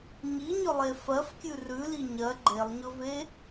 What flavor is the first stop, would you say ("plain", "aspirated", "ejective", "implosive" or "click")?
plain